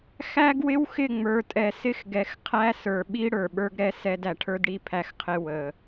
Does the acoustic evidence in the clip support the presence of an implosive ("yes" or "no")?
yes